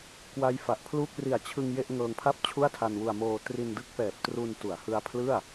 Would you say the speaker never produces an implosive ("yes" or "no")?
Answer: yes